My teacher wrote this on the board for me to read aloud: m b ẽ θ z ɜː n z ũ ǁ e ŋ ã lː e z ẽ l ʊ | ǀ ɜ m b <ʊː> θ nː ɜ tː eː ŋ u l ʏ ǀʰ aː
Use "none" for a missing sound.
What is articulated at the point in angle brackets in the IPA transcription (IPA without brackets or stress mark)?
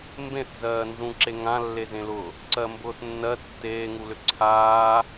ʊː